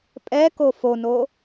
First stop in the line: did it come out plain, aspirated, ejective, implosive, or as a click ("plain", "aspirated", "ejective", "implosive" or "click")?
ejective